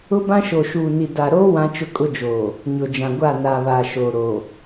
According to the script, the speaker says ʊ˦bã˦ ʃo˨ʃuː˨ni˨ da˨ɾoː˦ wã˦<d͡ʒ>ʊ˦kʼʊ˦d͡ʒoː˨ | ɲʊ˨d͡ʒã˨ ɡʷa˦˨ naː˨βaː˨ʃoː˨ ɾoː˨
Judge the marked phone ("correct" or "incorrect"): incorrect